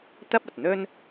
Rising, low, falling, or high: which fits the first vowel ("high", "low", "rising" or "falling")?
high